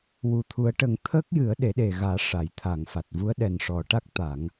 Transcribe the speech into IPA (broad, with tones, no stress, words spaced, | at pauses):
wu˨˩t̪ʰu˨˩˦ə̯ʈə˨˩˦ŋ t̪ʰəː˦˥k̚jɨ˨˩˦ə̯ ɗe˨˩˦ɗe˨˩ɣaː˨˩˦ ʂa˨˩˨jt̪ʰa˨˩˨ŋfa˨˩t̚ vu˧˥ə̯ɗɛ˨˩nʂɔ˨˩˦ʈa˦˥k̚ t̪a˨˩˦ŋ